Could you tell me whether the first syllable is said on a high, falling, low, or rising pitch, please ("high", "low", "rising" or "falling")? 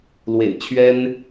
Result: low